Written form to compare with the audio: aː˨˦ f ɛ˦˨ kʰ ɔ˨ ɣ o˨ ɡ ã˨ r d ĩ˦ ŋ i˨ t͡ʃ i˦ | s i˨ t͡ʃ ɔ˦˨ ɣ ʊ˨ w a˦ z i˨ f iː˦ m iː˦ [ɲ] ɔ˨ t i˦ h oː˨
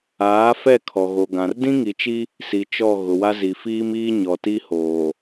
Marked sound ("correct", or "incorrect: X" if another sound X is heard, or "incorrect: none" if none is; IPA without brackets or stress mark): correct